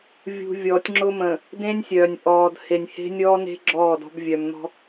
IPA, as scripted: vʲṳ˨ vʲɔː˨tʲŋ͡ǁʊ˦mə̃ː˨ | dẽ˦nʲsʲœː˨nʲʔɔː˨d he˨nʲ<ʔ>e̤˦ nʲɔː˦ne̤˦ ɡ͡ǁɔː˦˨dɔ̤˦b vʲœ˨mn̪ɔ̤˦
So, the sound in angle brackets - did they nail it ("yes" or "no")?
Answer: no